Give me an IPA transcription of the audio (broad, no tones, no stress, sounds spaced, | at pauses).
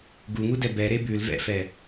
ɡ u ŋ u d ɛ b ɛ ɾ e b ʉ l v ɛ̰ f ɛ